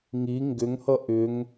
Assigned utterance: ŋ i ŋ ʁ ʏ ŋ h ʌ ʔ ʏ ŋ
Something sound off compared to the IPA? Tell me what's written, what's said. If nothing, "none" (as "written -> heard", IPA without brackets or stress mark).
ʁ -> ɡ